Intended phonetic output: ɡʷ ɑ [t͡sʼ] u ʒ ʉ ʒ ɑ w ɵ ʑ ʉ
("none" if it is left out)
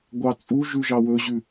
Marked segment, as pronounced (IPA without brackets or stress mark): t͡sʼ